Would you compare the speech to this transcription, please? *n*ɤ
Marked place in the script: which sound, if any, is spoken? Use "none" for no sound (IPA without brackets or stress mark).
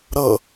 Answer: ɾ